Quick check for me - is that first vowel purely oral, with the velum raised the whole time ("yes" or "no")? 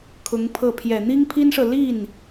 yes